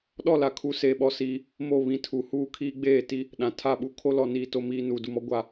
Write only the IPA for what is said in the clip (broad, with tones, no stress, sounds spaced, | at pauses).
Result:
ɗ ɔ˦˨ l a˨ kʰ u˨˦ s eː˨ ɓ ɔ˦ s iː˦ | m o˦˨ β ĩ˨ tʰ u˨ h uː˦ kʰ iː˦ ɡ͡b eː˦˨ t i˦ | ɗ ã˨ tʰ a˦˨ ɓ u˦ kʰ o˦ l ɔ˨ n iː˦ t o˦ m iː˦ n uː˨ d u˨ m ɔ˦ ɡʷ a˦